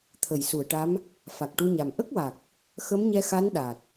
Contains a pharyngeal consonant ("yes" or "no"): no